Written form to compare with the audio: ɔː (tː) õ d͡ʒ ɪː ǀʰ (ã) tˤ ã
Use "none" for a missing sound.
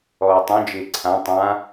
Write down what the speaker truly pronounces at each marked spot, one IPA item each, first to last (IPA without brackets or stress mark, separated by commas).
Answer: tˤ, ã